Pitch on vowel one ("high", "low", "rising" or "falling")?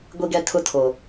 high